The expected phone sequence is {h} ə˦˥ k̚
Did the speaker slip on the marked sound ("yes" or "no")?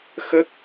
yes